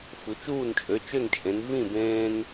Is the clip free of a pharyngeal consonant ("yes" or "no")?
yes